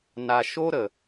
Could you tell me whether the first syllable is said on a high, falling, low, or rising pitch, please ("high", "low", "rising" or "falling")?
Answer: low